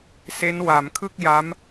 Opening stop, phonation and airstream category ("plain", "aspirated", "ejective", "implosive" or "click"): aspirated